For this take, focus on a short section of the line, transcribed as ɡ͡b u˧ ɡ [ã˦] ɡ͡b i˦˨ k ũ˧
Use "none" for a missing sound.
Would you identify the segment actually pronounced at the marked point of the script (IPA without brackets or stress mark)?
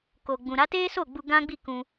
ã˦